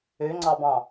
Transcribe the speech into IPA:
ø ŋ͡ǀ ɑ b ɑ̃

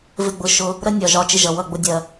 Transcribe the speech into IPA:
v ɪ˦˨ ɡ͡b ʊ˧ ʃ ʊ˧ | ɾ ə˦ nʲ ɒ˨ ʒ ɒ˧ t͡ʃ ɪ˦ ʒ ʌ˨ w ʌ˦˨ ɡ͡b ʊ˧ dʲ ɜ˨

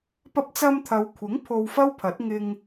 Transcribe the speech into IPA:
p ɐ˧ p̚ t͡s ɐ˧ m t̪ʰ ɐ˨˧ w kʷʰ ɪ˨˥ ŋ pʰ o˧ w f ɐ˥ w pʰ ɐ˨˥ t̚ ŋ ɪ˧ ŋ

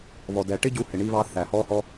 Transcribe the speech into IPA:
β ɔ˩ d ɛ˩ ʈ ɪ˥ ɟ u˧ h ɪ˩ ɳ i˧ β ɑ˧ θ æː˩ h ɔː˧ h ɔ˧

